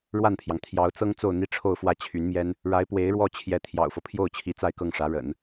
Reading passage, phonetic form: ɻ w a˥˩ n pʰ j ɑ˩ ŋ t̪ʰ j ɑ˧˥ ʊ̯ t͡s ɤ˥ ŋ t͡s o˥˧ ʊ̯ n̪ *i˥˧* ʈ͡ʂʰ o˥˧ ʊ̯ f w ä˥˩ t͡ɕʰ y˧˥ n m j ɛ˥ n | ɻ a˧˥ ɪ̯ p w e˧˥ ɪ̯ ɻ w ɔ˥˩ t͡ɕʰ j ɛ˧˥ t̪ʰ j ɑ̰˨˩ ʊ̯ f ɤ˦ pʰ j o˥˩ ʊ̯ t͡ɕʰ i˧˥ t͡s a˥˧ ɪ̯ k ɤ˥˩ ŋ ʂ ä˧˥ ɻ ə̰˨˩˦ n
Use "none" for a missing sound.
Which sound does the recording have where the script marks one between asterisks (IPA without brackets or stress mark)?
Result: i˥˧